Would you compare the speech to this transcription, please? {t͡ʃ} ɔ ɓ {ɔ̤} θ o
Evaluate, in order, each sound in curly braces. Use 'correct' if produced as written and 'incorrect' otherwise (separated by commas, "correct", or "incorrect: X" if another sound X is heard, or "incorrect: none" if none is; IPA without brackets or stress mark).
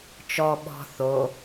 correct, correct